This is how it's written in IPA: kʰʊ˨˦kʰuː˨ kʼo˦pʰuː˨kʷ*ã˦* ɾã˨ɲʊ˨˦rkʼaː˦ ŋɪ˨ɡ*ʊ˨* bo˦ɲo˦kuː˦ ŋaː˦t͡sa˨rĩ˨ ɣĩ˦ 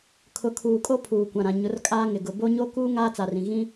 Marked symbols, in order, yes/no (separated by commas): no, yes